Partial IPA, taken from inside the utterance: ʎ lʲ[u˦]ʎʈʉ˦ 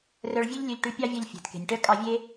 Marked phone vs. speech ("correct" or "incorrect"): incorrect